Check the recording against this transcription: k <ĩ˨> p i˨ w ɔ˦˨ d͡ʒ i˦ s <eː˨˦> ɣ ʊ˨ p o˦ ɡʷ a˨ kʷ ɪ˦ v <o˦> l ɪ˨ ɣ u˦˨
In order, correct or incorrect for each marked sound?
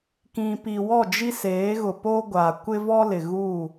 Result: correct, correct, incorrect: ɔ˦

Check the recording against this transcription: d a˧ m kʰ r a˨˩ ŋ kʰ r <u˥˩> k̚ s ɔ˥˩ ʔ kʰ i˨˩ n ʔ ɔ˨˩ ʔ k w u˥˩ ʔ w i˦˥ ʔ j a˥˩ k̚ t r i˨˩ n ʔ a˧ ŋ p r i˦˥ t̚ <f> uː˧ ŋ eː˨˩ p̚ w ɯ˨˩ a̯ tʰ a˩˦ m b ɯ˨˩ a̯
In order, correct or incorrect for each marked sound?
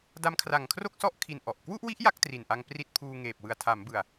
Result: incorrect: o˥˩, incorrect: pʰ

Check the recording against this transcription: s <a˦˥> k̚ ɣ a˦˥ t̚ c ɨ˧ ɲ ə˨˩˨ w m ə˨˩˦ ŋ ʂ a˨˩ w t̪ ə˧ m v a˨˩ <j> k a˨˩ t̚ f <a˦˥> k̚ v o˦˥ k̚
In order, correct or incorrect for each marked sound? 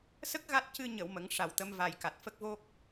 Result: incorrect: ə˦˥, correct, incorrect: ə˦˥

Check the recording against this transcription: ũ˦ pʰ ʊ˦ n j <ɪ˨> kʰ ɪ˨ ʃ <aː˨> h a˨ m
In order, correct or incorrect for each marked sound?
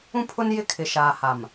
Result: incorrect: ɪ˦, correct

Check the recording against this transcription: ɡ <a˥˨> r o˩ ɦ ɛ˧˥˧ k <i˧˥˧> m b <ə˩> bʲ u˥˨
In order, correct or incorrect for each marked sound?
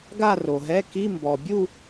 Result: correct, correct, incorrect: ɔ˩

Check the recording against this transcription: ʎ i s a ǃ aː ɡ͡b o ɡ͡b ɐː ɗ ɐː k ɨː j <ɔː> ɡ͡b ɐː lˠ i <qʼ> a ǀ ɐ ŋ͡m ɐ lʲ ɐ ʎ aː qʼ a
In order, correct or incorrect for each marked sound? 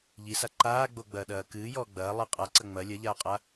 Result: correct, correct

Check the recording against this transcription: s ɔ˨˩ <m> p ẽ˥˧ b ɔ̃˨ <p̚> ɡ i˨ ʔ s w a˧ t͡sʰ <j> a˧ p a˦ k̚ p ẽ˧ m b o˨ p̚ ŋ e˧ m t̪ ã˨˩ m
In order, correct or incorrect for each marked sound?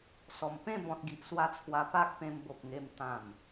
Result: correct, incorrect: t̚, incorrect: w

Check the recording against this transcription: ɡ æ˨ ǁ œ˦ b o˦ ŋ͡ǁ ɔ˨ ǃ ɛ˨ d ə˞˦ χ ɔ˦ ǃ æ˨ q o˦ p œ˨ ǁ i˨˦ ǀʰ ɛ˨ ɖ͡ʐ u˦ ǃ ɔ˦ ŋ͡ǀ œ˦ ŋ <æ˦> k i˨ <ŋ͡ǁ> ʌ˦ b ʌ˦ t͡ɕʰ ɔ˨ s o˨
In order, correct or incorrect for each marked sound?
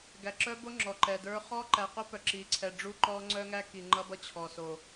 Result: correct, incorrect: ŋ͡ǃ

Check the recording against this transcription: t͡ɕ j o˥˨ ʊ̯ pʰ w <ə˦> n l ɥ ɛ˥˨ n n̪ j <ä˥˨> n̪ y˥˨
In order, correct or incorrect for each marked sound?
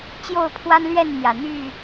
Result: incorrect: a˦, incorrect: ä˨˩

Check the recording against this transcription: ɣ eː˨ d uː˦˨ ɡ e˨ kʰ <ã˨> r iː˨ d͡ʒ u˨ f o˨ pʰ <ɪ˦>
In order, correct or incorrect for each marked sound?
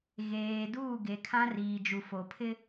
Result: incorrect: ã˦, correct

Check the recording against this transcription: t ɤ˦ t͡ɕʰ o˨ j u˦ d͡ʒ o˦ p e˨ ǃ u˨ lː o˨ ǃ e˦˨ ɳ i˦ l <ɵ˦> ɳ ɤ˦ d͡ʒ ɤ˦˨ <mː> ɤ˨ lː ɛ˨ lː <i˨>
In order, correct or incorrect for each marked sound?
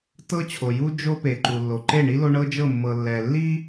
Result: incorrect: o˦, correct, incorrect: i˦

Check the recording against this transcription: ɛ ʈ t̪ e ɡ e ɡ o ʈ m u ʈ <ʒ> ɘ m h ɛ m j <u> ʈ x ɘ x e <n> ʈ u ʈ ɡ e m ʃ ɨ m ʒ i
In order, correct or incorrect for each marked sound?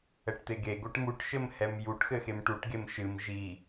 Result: incorrect: ʃ, correct, incorrect: m

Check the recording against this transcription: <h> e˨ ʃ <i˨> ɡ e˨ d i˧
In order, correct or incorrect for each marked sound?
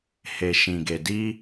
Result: correct, incorrect: ĩ˨

